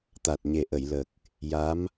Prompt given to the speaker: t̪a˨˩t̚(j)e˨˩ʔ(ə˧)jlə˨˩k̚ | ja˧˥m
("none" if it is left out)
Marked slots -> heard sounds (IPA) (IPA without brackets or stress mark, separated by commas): ɲ, ə˨˩˨